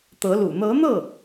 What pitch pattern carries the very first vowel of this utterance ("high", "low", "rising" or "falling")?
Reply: rising